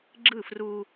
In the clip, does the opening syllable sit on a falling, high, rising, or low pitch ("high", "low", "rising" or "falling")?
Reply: falling